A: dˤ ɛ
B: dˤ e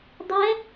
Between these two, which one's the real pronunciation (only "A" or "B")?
A